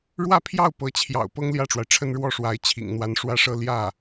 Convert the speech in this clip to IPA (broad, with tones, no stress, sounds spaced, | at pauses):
ɻ w ä˥˧ pʰ j ɑ˥˩ ʊ̯ p ɤ˧˥ t͡ɕʰ j ɑ̰˨˩ ʊ̯ p ɤ˥ ŋ l j ä˥˩ ʈ͡ʂ w a˩ ɪ̯ ʈ͡ʂʰ ə˥ n ɻ w ɔ˥˩ ʂ w a˧˥ ɪ̯ t͡ɕʰ ḭ˨˩ ŋ n̪ w a˧˥ n ʂ w ä˥˧ ʂ ɤ˥˧ l j ä˥˩